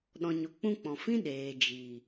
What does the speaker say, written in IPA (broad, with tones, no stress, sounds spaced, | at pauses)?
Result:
ɗ ɔ̃˨ ɲ o˨ k͡p ũ˧ k͡p ɔ̃˨ f ĩ˦ ɗ eː˨ d͡ʒ iː˨